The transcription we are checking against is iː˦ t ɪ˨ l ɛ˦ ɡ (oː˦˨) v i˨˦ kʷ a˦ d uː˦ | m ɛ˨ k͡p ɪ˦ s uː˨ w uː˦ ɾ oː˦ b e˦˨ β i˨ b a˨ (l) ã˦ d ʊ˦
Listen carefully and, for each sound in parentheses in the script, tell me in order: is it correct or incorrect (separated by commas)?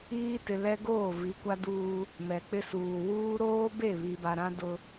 correct, incorrect